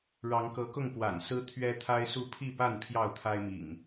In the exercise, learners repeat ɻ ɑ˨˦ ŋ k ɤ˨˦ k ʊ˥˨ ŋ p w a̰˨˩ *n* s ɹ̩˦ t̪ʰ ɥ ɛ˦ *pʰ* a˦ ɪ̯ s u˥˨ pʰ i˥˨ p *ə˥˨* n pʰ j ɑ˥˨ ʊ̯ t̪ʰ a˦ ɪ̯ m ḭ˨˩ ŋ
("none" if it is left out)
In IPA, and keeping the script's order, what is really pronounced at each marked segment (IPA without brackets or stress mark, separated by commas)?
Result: n, t̪ʰ, a˥˨